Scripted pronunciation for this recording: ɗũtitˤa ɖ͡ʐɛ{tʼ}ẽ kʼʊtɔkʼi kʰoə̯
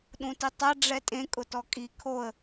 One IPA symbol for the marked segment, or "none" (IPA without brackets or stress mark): tʼ